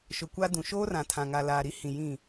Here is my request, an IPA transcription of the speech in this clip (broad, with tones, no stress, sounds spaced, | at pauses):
ʃ ʊ˨ kʷ a˦ d ũ˨ ʃ oː˦ r ã˨ tʰ ã˨ ŋ a˨ l aː˨ ɾ i˦ h ĩ˨ j ĩ˦˨